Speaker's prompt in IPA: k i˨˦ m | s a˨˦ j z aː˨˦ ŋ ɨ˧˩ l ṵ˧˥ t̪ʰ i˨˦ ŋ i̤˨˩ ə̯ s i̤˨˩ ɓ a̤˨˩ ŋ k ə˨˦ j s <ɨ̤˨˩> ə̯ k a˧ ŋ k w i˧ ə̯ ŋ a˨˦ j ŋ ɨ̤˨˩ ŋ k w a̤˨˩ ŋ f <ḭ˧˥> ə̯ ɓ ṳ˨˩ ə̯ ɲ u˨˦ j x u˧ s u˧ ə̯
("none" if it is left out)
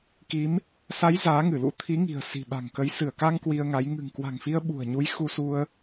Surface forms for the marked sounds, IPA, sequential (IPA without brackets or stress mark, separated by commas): ɨ˧˩, i˧